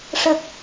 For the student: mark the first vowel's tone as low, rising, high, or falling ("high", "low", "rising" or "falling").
low